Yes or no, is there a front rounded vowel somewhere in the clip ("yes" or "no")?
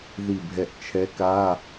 no